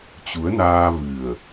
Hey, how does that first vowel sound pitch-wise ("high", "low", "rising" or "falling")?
rising